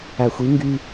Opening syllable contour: low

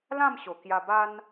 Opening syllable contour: falling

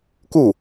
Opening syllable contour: falling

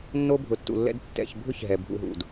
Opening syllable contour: high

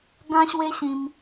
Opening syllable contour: high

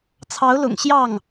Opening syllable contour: rising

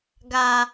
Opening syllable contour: low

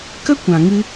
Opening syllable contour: high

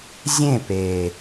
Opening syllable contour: falling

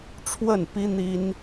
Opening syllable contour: falling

